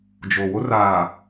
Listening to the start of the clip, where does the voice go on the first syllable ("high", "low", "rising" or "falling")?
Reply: low